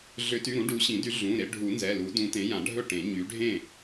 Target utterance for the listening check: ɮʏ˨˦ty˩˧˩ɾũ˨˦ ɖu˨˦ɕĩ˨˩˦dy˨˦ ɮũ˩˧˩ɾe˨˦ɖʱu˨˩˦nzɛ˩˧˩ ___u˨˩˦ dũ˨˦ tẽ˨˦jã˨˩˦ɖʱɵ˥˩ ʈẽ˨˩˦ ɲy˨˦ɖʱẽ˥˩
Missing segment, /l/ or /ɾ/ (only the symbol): l